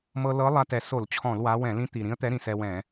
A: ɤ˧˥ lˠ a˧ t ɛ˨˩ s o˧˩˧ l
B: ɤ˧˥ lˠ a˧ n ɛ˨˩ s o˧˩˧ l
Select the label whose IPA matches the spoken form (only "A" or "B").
A